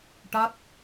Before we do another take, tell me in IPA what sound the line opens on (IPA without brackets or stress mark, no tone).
ʈ